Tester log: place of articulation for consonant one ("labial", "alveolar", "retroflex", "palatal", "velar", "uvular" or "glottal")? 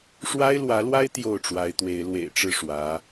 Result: retroflex